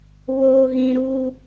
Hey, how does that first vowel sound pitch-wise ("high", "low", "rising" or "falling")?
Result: low